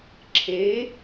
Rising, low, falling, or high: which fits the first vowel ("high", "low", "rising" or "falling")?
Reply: rising